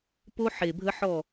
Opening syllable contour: high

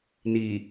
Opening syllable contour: low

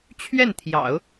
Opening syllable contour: falling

